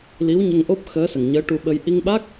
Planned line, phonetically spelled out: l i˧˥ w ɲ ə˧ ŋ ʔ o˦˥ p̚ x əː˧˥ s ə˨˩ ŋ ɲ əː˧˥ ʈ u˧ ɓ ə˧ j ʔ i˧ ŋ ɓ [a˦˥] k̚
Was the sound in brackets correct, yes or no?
yes